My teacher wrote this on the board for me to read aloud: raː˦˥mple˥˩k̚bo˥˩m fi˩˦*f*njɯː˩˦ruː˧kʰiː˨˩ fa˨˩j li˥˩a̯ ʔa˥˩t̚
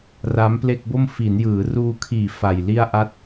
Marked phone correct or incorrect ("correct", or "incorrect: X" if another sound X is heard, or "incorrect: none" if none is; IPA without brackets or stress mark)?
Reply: incorrect: none